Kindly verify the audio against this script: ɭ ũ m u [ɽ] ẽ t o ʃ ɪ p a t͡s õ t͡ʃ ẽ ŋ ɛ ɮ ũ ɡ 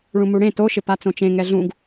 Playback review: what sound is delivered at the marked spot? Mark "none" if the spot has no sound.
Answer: ɽ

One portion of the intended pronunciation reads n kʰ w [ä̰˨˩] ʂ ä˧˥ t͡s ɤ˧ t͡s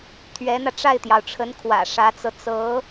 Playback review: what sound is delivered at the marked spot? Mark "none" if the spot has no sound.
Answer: ä̰˨˩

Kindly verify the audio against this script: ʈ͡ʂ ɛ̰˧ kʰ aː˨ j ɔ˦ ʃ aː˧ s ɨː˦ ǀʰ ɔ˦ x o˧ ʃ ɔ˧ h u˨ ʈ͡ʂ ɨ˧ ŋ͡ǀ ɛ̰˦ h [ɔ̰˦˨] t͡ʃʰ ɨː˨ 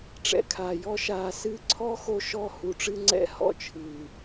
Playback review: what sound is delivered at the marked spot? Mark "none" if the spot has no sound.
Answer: ɔ̰˦˨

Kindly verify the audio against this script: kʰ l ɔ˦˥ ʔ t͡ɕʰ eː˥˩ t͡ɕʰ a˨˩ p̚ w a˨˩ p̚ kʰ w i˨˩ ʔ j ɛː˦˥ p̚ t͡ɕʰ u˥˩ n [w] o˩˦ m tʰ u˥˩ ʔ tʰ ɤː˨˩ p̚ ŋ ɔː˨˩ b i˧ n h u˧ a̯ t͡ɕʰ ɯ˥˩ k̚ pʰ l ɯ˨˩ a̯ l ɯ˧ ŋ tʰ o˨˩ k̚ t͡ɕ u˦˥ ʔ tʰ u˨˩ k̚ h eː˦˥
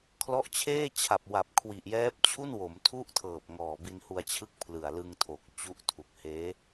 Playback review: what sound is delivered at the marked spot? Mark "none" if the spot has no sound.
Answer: w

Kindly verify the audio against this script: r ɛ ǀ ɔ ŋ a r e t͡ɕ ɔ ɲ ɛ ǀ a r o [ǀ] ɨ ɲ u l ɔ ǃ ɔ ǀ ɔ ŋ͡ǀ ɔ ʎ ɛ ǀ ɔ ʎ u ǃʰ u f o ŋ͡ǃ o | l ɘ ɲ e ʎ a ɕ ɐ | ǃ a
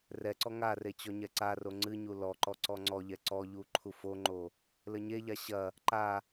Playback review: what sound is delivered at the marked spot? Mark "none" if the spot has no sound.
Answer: ŋ͡ǀ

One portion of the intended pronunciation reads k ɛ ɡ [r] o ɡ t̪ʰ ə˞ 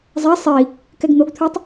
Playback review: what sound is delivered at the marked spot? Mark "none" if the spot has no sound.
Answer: n̪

